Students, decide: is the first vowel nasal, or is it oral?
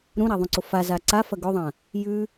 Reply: nasal